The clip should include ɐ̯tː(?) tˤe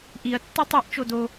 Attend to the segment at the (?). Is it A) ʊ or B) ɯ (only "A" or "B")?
B